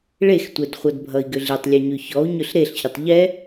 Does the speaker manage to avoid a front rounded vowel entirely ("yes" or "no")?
no